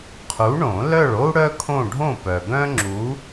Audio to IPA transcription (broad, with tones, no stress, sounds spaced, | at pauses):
qʰ u˨˥ ɳ õ˨˩˦ l œ˥˨ ɭ o˥ u̯ ɽ œ˥ kʰ õ˥˨ ɖʱ õ˥˨ p œ˨ ɡ œ̃˥ ŋ͡ǁ u˨˥